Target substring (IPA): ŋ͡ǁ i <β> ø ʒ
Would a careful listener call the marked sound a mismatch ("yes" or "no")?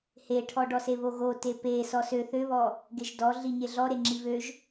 no